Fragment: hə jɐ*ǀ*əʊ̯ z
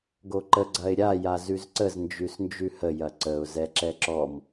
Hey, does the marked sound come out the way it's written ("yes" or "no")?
yes